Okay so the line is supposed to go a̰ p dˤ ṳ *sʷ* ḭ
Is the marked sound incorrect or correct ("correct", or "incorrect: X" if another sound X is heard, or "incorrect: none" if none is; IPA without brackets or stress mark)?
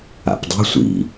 correct